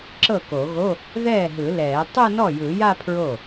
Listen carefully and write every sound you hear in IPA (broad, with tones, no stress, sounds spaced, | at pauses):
ǁ ɤ˥˩ k o˨˩˦ ɣ o˧˥˧ | ð ɛː˥˩ ɦ ɯ˨˩˦ l ɛː˨˩˦ tˤ ɯ˥˧ n ɔ˥˩ j ɯ˨˩˦ j a˥˧ pʰ ɹ o˥˩